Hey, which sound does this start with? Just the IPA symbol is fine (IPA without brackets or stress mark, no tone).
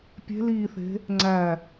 pʲ